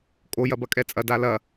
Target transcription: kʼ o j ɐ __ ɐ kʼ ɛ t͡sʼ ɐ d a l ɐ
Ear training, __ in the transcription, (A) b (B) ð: A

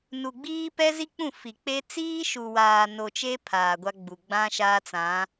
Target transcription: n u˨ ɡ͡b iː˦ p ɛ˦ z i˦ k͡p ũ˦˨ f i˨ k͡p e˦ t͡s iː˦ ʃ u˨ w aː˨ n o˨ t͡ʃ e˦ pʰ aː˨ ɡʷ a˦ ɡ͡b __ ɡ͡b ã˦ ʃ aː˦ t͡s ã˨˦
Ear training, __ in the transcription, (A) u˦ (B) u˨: B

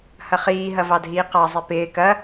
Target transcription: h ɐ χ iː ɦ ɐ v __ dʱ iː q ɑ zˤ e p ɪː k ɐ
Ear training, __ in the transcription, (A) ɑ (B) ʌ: A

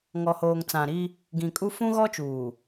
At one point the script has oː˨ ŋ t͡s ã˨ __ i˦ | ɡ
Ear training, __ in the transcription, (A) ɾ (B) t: A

